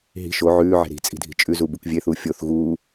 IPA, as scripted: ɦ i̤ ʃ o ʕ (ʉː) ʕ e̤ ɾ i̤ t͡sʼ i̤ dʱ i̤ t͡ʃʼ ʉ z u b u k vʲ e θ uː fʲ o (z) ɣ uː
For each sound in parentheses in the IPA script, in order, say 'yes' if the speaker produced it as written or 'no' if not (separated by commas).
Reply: yes, no